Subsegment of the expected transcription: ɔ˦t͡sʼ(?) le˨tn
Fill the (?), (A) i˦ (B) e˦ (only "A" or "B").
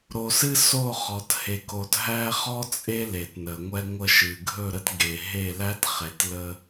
B